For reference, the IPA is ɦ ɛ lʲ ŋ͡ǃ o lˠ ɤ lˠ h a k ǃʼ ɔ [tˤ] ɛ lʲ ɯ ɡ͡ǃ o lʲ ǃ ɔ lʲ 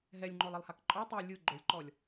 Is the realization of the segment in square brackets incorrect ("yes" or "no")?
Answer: no